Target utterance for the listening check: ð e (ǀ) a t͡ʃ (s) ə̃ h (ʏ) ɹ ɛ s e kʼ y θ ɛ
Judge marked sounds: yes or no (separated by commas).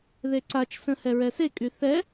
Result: yes, yes, no